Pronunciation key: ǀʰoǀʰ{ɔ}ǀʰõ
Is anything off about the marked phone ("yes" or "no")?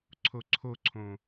yes